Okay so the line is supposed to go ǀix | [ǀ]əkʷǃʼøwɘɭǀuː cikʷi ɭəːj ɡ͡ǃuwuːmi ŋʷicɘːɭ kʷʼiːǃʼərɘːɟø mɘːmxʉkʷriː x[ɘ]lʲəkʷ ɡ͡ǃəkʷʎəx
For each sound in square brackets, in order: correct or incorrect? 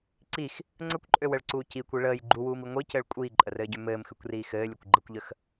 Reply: incorrect, incorrect

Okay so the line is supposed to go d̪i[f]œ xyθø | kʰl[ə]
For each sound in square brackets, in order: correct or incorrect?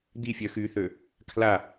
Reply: incorrect, incorrect

